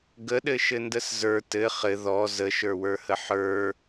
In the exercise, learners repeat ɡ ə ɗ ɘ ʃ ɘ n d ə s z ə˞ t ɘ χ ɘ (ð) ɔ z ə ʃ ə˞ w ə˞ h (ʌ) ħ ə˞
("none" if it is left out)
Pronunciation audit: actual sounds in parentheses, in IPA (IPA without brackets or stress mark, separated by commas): ð, ə